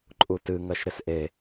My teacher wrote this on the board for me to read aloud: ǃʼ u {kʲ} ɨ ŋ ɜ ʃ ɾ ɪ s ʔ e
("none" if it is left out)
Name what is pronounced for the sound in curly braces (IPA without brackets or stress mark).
t